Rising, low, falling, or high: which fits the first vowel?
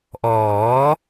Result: rising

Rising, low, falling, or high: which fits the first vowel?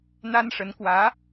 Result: high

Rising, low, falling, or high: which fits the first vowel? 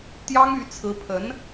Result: high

